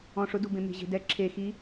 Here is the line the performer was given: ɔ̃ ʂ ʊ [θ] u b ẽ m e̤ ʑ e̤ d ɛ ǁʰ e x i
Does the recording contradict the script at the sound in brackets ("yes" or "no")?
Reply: yes